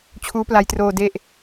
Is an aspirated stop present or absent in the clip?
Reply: present